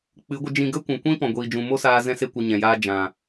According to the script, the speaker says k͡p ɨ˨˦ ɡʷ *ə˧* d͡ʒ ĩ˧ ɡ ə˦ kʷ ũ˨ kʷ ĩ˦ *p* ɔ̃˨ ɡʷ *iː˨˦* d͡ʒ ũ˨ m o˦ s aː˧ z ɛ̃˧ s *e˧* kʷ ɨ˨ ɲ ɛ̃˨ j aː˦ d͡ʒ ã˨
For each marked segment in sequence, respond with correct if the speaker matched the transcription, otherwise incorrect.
correct, correct, incorrect: iː˨, correct

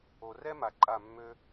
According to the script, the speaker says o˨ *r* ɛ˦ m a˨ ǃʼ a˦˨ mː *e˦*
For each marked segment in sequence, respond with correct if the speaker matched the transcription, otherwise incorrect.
correct, incorrect: ø˦

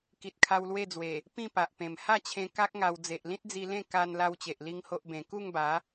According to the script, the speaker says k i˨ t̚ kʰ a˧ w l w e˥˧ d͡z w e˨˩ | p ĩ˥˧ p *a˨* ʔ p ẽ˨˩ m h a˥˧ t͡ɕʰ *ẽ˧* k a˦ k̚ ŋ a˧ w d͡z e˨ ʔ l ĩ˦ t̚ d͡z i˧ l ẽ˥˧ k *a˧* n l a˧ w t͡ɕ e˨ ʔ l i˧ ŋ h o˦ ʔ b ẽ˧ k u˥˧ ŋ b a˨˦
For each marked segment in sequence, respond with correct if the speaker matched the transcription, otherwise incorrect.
correct, correct, correct

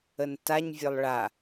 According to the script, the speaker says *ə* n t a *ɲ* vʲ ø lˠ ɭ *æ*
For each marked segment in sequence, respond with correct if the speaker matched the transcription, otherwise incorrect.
correct, correct, incorrect: a

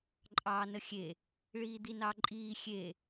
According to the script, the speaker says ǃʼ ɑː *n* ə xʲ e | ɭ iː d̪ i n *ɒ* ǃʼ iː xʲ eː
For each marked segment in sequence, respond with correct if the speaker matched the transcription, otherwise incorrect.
correct, incorrect: ɑ

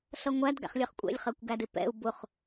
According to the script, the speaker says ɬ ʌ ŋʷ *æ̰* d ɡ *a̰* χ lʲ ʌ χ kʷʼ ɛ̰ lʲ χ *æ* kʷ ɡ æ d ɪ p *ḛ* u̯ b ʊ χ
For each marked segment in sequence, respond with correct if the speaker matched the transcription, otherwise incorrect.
incorrect: æ, incorrect: æ̰, incorrect: ɜ, incorrect: ɛ̰

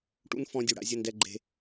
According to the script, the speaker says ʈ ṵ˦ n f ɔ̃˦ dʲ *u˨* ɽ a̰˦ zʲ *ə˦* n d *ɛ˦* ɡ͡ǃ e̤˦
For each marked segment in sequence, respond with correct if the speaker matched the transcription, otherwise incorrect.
incorrect: u˦˨, correct, correct

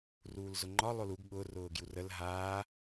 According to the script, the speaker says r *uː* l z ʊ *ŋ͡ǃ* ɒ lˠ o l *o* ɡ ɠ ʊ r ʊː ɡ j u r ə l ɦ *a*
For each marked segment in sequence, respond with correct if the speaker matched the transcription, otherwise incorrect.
correct, correct, incorrect: u, incorrect: aː

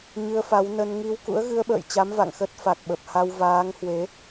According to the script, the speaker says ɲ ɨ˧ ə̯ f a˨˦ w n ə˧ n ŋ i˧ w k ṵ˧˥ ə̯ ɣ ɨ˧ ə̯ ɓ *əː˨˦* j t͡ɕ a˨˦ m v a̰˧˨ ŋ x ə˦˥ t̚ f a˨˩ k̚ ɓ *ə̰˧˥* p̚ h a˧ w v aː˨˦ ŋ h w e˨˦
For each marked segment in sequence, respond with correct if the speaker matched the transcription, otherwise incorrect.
incorrect: ə̰ː˧˨, incorrect: ə˨˩

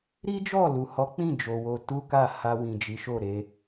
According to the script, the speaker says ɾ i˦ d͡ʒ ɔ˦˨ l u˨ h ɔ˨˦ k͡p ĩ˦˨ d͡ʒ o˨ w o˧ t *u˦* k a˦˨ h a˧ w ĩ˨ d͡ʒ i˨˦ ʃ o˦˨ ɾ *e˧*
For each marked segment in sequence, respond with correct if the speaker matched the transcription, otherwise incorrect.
correct, correct

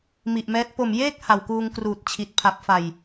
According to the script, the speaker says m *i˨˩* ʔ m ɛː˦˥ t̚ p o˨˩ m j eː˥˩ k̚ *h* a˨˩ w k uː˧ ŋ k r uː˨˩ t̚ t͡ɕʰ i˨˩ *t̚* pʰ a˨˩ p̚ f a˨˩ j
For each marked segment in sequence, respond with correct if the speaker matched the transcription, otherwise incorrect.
correct, correct, correct

